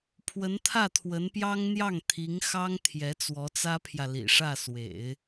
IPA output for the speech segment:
pʰwə˧˥nt̪ʰä˥˩t̪ʰwə˧˥npjɑ˥ŋ n̪jɑ˥˩ŋt̪ʰi˧˥ŋxɑ˥ŋ t̪ʰjɛ˧˥t͡swɔ˧˥t͡sä˥pʰjä˨ lḭ˨˩ʂä˥˩swḛ˨˩˦ɪ̯

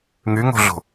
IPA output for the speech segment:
ŋyŋo̤ɮo̤

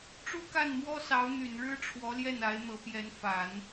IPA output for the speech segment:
ʈ͡ʂu˥˧ka˥˩n mwɔ˥sɑ˧˥ʊ̯n̪y˨˩nɻɻ̩˥ ʈ͡ʂʰwɔ˧˥ljɛ˥˩na˧˥ɪ̯ n̪ɤ˧˥pjɛ˧˥n fa˨˩˦n

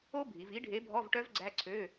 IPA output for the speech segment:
o˦˥bʱi˩˧v i˨˥ɖʱe˨˥ bʱɔ˧˥˧vʈœ˦˥vɡ͡ǀæ˧˥˧ǀʰø˧˥˧

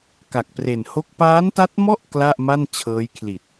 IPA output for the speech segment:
ka˨˩k̚pre˨˩nho˥˩k̚ paː˦˥nta˦˥t̚mɔ˥˩ʔ kla˥˩ʔma˥˩n t͡ɕʰɤː˦˥jkʰli˨˩t̚

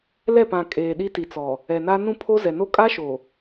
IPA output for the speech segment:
lɛ˦˨pã˨ kʼeː˨ ɗi˦ti˨t͡sɔ˨ | ɛ˨na˦ nũ˦˨ pʰo˦zɛ˨no˦ kʼa˦ʃo˨

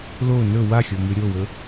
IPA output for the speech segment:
lo nɵ waxʲomʉ ɾʲowɵ

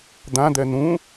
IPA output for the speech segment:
d̪ãd̪ɛ nũ

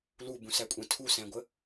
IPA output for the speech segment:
lubũsækʷʼɛ̃ tʰusæ̃ɡʷə

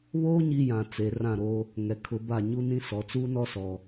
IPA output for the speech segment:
βoː˦ ɲi˦jã˨t͡se˨ rã˦˨ɾo˦ | ŋɛ˨kʰʊ˨˦ ba˦˨ɲu˦nĩ˦sɔ˨ t͡suː˦nɔ˦sɔ˨

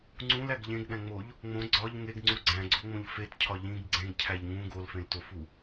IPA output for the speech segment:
ŋ͡ǀũlæɡ ʎẽɡɗæ̃ŋ͡moʎ | ŋ͡mõ ɡ͡ǀɒʎ ŋeɡŋ͡ǀu ɡ͡ǀæ̃ɡ͡ǀoŋ͡mõʎ fetcʰɒ ʎĩɡ ɡ͡ǀẽɡcʰæʎ ŋũ ɡolfẽltofu

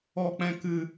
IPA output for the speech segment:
ɔ˨k͡pɛ̃˨ kɨ˨

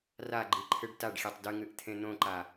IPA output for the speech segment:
raɡ͡ǃiǃʰɨɖ taɖxʲetˤ dɨŋɨʔt̪ʰẽ n̪õǃa

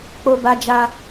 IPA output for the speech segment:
k͡po˧ba˧d͡ʒa˧

